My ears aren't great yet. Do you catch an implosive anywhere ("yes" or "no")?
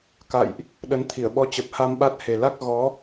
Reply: yes